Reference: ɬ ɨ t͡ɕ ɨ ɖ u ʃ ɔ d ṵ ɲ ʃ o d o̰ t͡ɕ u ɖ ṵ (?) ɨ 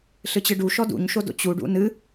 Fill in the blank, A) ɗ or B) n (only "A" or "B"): B